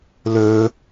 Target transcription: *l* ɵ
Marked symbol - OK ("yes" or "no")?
yes